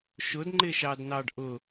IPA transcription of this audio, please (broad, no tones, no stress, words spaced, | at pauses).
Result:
ʃʊdŋ͡ǃɪʃɑdnɑɖ ʔʊ